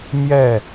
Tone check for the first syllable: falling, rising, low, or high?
falling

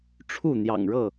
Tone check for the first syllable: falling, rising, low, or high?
falling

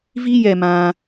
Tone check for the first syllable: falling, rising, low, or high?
high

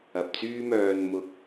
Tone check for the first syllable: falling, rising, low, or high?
low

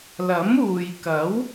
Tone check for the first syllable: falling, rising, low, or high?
rising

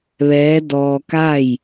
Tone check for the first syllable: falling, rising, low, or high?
rising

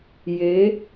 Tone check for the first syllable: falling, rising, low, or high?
rising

